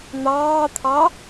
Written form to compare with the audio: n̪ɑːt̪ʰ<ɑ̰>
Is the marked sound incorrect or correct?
incorrect